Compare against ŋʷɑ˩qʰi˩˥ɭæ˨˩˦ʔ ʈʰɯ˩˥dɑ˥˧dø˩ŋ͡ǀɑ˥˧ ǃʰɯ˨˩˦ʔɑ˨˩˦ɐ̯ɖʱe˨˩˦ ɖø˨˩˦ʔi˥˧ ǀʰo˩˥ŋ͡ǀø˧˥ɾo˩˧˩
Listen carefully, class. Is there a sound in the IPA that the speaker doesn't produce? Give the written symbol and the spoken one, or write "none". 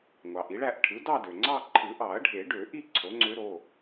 qʰ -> ʔ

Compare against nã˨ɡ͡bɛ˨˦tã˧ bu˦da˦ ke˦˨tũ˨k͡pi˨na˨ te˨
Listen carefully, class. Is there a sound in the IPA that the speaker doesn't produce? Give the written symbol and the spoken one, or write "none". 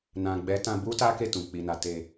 d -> t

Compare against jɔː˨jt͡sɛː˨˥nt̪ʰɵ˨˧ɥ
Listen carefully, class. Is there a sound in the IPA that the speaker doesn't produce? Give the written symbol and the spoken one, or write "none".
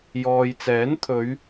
none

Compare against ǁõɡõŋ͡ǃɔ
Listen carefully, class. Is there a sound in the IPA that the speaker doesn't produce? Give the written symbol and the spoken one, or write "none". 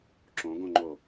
ɔ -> o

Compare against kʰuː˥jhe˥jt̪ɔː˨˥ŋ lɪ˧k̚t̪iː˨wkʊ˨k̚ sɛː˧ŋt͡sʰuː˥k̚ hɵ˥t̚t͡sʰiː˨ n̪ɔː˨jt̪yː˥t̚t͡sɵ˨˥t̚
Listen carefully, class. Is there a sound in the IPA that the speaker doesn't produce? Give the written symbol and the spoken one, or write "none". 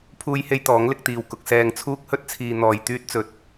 kʰ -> pʰ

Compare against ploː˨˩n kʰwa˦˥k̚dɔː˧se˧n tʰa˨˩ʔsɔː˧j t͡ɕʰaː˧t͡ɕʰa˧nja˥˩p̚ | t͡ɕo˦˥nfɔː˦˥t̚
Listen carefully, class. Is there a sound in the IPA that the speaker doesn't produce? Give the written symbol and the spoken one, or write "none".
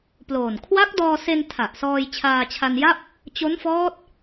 none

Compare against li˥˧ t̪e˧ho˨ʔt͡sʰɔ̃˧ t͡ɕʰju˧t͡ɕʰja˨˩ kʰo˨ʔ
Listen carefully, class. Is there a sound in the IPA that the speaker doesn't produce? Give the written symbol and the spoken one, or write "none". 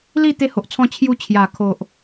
none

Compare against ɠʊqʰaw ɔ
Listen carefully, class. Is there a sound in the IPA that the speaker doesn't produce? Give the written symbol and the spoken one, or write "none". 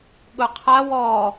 none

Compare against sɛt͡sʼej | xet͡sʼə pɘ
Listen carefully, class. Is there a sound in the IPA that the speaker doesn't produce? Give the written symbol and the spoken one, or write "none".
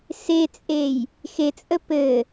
ɛ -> e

